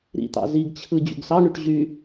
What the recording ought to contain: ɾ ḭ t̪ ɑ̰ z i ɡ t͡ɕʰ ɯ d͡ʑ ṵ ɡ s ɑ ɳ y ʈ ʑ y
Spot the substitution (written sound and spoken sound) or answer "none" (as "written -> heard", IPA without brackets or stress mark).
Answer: none